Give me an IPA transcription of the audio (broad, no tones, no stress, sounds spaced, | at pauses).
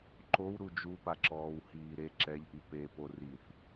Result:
ǃ o w ɾ u d͡ʒ u p a ǁ ɔː w h iː ɾ e ǁ ɛ ʎ ʔ i p e p o r i θ